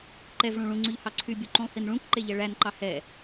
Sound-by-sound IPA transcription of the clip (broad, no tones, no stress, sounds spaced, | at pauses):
ǃ ɛ v ɭ ũ ɭ ũ ŋ͡ǀ ʉ ʎ h ɑ ǀʰ y bʲ u ǃ ũ lˠ h i n ɭ ũ k ǃ e ʎ ɛ ɭ æ n ǃ ɑ h ɛ